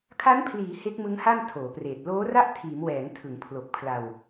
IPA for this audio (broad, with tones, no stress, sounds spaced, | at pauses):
kʰ a˦˥ n pʰ l iː˩˦ h e˦˥ k̚ m ɯ˦˥ ŋ h a˥˩ n tʰ oː˩˦ p r eː˨˩ t̚ l oː˦˥ r a˥˩ ʔ tʰ iː˩˦ m w ɛː˩˦ ŋ tʰ ɯ˩˦ ŋ pʰ l o˨˩ k̚ pʰ l a˧ w